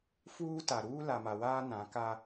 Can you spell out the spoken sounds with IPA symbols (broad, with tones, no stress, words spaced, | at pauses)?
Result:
fuː˦ta˨ ɾuː˦la˨ma˨waː˦ nã˨˦ka˦